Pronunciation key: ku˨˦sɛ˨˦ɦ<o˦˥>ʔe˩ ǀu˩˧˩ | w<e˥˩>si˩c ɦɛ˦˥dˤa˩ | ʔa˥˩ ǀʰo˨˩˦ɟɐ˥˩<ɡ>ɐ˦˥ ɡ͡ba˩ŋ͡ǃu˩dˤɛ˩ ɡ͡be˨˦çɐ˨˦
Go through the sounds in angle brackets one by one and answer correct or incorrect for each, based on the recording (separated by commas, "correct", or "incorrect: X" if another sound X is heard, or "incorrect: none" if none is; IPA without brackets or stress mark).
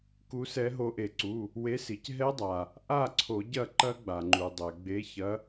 incorrect: o˨˦, incorrect: e˨˦, incorrect: ǃ